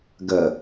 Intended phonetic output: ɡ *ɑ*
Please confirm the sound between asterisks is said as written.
no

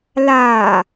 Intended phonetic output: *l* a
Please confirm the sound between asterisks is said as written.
yes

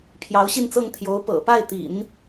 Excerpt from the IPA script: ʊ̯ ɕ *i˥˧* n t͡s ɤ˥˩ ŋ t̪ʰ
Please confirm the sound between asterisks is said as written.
yes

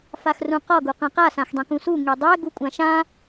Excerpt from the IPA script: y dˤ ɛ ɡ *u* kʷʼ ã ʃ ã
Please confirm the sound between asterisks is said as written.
yes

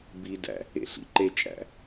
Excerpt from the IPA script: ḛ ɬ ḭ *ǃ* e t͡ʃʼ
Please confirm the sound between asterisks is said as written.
yes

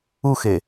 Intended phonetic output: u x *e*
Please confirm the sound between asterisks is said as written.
yes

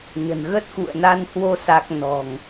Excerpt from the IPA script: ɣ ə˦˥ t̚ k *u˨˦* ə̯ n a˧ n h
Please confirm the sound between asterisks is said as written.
no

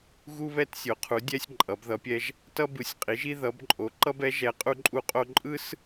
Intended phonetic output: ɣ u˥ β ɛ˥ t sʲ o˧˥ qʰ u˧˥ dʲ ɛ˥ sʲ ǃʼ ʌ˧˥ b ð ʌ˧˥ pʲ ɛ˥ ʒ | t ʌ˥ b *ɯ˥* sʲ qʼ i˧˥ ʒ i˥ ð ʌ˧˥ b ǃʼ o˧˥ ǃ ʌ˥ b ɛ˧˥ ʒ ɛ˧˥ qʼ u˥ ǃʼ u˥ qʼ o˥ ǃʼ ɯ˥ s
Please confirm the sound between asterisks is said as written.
no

